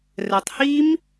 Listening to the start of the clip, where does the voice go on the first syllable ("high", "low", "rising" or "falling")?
low